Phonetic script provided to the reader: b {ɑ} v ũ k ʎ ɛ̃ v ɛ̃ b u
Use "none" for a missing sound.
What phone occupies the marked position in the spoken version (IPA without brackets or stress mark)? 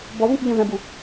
ɔ